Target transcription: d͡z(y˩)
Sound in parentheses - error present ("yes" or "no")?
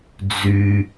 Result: yes